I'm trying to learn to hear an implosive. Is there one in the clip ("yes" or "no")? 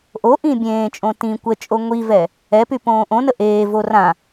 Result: no